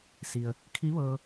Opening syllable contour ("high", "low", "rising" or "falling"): low